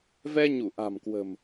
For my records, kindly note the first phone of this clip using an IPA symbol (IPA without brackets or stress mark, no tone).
v